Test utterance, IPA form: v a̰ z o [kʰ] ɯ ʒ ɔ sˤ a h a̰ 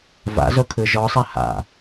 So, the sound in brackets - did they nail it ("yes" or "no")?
yes